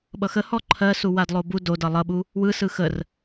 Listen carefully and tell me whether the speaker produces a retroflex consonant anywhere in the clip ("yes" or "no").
no